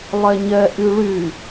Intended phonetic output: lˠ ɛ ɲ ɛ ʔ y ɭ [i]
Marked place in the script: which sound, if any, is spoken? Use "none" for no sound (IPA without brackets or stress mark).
y